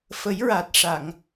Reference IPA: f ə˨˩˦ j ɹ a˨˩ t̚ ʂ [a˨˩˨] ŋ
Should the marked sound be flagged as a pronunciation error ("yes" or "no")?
no